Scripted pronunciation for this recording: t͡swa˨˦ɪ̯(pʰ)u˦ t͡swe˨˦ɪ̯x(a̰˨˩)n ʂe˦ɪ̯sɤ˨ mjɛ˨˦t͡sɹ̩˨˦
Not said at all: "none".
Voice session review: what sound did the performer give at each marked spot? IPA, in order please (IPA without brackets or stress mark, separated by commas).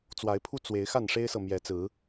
pʰ, a˥˨